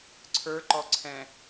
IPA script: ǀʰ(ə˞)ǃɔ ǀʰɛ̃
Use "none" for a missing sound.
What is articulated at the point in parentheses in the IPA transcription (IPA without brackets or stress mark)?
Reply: ə˞